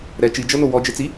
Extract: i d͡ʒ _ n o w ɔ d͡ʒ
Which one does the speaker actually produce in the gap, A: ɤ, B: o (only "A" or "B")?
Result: A